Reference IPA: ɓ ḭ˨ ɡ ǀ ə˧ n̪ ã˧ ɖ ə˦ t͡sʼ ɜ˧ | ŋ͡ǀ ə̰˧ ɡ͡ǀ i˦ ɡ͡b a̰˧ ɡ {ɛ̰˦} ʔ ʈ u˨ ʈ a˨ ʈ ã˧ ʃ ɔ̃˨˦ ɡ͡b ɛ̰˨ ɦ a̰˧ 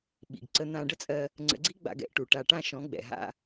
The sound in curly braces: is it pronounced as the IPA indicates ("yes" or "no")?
yes